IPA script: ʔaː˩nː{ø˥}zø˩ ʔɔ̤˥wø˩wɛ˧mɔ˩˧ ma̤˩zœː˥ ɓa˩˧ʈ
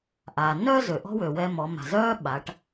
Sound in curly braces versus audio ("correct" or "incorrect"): incorrect